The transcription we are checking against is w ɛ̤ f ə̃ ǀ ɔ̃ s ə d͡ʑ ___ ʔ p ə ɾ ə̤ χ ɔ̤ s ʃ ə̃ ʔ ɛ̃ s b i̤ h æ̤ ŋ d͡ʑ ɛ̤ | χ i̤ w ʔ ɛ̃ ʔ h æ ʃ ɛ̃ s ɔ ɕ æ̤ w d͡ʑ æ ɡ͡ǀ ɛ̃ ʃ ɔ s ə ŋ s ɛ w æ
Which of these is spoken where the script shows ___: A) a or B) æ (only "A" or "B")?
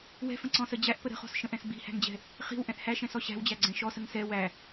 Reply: B